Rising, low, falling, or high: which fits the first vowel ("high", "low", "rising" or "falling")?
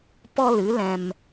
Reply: high